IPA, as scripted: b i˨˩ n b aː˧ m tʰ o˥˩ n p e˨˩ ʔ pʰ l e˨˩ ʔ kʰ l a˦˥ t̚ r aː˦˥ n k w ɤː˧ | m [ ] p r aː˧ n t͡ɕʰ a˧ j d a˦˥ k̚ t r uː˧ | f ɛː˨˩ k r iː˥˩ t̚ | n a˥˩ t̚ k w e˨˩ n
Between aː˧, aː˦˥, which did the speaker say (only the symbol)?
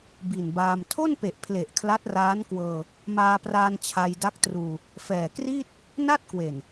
aː˧